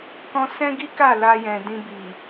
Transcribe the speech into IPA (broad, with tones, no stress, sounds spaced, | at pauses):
k ɔ̃˧ s ɛ̃˦ ɡ i˦ k a˦˨ l a˧ j ɛ̃˨ d ĩ˧ b i˨